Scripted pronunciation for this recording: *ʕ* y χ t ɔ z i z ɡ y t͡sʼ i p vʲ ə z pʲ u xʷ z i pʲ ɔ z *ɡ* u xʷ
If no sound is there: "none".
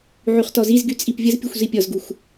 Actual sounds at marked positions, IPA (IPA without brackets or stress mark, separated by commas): ʕ, ɡ